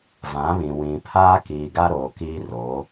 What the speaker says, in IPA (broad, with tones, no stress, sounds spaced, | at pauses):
v ã˨˦ β ĩ˨ w ĩ˨ pʰ aː˦ k iː˨ ɡ a˦ ɾ oː˨ k iː˦ r oː˨˦